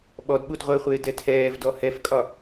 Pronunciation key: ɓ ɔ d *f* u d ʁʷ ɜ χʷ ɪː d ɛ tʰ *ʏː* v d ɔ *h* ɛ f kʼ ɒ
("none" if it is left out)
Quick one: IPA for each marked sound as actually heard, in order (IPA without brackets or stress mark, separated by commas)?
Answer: ɓ, ɛː, h